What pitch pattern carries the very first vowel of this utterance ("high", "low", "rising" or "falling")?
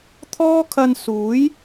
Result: high